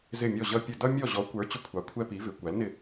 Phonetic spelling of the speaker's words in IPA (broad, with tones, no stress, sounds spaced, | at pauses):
z ɪ˦˨ mʲ ɔ˦˨ ʑ ʌ˦ pʲ ə˦˨ d ʌ˦ mʲ ɔ˦˨ ʑ ɔ˨˥ kʷ ə˞˨˥ t͡ɕ ʊ˦ kʷʰ ɑ˨˥ kʷʰ ɛ˦ p i˨˥ v ɪ˨˥ kʷ æ˨˥ l n ɪ˦˨